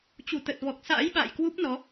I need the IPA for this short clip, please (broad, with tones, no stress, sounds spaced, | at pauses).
t͡ɕ u˧˩ t̪ ə˨˩ t̚ v ɔ˨˩ k̚ s a̰ː˧˥ j ɓ a̰ː˧˨ j k w u˦˥ p̚ n ɔ˨˦